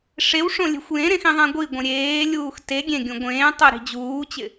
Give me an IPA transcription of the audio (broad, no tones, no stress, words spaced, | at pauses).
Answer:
ʂewʂõ lʲe̤xʷjẽɾẽx ĩðˤɛ̃ɡʷiɡʷẽ ɾʲeːlʲuːx te ɡʲẽɡʲũ ɡʷẽːtˤo ɾi̤d͡ʑuːt͡ɕɪ